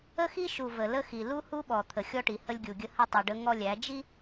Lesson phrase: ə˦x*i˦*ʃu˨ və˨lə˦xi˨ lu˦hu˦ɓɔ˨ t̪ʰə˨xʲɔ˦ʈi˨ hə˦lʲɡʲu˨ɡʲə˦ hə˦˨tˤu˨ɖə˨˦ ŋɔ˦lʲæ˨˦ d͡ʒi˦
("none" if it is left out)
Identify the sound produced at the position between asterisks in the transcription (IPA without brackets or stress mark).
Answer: i˦